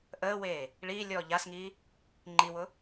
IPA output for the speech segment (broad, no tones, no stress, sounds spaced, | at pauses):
ʔ əː w eː | ɭ iː lʲ ɔː ʎ a s ŋ iː | ŋ͡ǃ i w ʊ